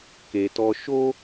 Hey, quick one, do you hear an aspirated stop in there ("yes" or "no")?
no